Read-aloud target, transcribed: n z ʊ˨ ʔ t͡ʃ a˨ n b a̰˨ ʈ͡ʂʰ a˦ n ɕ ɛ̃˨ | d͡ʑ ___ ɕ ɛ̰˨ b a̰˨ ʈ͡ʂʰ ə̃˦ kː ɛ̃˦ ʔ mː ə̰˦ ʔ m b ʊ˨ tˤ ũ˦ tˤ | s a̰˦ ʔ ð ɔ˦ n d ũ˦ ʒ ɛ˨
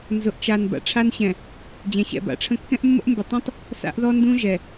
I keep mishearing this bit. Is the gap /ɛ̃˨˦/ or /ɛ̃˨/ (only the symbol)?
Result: ɛ̃˨